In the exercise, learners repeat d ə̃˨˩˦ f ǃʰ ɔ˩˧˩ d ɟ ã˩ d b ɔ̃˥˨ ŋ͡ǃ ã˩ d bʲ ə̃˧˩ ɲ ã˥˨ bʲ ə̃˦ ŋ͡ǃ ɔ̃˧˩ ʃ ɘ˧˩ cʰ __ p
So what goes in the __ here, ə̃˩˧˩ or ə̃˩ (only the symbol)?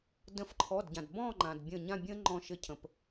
ə̃˩